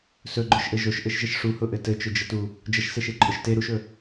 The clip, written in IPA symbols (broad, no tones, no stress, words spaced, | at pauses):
sɵɡ͡ǃɵʃʔɘ ʒoʃʔɘʃʒəʃ ʂuhʊʔɘ tɘt͡ʃɵd͡ʒətu | d͡ʒəʃseʃeǃʼʊʃ te ɾuʃɵ